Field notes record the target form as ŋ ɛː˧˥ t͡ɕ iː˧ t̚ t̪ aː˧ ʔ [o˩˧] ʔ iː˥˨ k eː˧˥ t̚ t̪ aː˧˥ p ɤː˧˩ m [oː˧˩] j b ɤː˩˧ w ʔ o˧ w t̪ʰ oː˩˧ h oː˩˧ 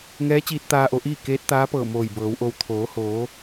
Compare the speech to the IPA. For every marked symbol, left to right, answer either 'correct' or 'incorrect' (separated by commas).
correct, correct